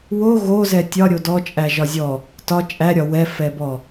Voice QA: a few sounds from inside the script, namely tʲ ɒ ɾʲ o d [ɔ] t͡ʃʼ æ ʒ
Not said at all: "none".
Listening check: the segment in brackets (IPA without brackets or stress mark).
ɔ